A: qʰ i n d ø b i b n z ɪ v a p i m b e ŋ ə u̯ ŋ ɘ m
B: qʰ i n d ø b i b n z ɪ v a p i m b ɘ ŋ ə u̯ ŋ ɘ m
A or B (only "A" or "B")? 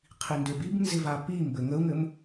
B